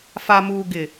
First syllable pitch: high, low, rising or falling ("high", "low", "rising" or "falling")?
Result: low